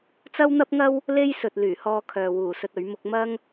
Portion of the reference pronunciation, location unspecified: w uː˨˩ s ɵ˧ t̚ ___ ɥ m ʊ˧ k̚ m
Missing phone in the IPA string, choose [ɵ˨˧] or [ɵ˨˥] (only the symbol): ɵ˨˥